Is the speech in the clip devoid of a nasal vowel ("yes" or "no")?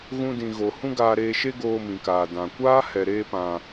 no